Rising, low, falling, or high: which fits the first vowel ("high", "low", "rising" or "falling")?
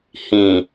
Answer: low